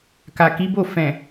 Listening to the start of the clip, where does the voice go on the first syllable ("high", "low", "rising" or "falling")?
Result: low